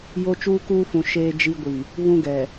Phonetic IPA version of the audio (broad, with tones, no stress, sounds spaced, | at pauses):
j o˦ t͡ʃ uː˦ k uː˦ f ũ˨ ʃ eː˦ d͡ʒ i˦ ɡʷ i˨ | β ũ˦ ɡ ɛ˨